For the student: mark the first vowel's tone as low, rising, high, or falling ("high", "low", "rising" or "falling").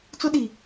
high